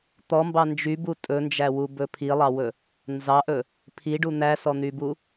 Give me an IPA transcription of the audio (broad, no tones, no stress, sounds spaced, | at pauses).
t̪ ɔ m b ɑ n d͡ʒ y b u tʼ ɵ n d͡ʒ æ w u b ɵ pʰ i lˠ ɑ w ɵ | n z ɑ ʔ ɵ | pʰ i ɖ u n̪ æ s ɔ n̪ y b u